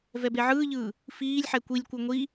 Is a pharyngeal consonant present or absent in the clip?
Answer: present